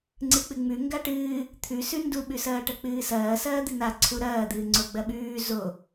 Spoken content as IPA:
ŋ͡ǀ ɨ k͡p ɨ ŋ͡m ʉ ŋ ɡ a ʈ ɨː | t̪ʰ ʉ s ʉ n d u ɓ ʉ s ɐː ʈ ɐ k͡p ɨː s ɐː s ɐː d̪ ɨ n a ǀʰ u ɾ ɐː d̪ ɨː ŋ͡ǀ o ɡ͡b ɐ ɓ ʉː z o

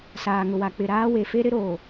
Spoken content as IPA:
s aː˨ ŋ ʊ˨ w a˨ k͡p ɪ˨ ɾ aː˦ w e˨ f e˦ ɾ ɪ˦ ɾ oː˨

